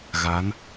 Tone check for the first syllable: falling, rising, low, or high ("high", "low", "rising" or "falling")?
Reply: rising